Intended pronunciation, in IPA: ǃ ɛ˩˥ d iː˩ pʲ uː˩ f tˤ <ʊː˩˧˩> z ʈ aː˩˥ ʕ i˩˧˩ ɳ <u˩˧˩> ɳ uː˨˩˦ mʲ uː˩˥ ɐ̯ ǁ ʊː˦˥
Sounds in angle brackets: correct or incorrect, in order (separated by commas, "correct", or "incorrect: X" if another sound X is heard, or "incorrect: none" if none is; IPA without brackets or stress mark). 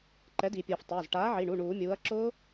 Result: correct, correct